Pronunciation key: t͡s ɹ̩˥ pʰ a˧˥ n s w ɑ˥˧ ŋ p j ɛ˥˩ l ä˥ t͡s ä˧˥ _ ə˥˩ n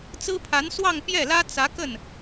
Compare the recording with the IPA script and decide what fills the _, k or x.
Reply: k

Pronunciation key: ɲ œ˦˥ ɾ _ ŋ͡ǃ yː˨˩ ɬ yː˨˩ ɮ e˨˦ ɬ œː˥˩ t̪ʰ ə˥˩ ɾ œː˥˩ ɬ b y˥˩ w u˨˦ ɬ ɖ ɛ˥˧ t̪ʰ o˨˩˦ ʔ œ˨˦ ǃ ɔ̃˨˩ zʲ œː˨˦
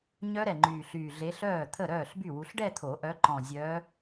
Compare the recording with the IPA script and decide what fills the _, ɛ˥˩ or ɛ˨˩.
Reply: ɛ˨˩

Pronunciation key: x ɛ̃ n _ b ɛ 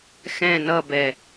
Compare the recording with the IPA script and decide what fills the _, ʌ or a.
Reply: ʌ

